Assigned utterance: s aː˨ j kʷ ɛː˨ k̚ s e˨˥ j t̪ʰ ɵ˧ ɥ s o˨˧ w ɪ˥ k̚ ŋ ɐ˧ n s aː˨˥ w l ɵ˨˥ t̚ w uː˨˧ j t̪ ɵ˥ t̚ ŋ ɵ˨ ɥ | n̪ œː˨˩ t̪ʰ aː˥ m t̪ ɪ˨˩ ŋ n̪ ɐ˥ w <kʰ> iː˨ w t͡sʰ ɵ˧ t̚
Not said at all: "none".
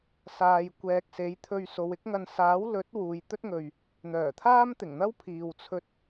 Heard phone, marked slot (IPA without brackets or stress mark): pʰ